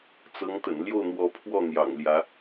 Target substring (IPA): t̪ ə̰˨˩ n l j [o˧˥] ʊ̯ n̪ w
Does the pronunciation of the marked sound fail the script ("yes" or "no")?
yes